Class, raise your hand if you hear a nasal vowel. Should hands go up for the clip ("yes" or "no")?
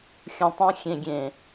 yes